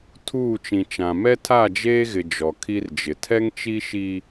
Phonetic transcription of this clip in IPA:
tʰuː˦˨t͡ʃĩ˨t͡ʃã˨ mɛ˦tʰa˦˨d͡ʒeː˦ɣɪ˨ d͡ʒɔ˨kʰi˦rd͡ʒɪ˨ tʰɛ˦ŋt͡ʃi˦ʃi˦

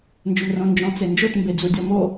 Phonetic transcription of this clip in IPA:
nd͡ʒʊmrõ nd͡ʒɔ̃t͡send͡ʒot mbed͡zudʲɔmo

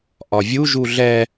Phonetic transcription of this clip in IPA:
ʔɒvʲu ʒuɮɛ

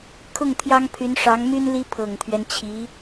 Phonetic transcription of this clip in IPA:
kʰʊ˥˩ŋt̪ʰjɑ˥ŋpʰy˧˥n ʂɑ˧˥ŋmy˥nli˥ pʰɤ˨˩ŋt̪ʰɥɛ˦nt͡ɕʰi˧˥

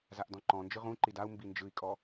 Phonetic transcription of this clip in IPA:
zaʔdɔ̃ǃɔ̃nd͡ʒɯ ʁũǃid au̯ mbind͡ʒɯi̯kʼɔ

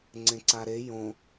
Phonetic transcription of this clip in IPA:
ŋ͡ǀẽǀaɾe jõ

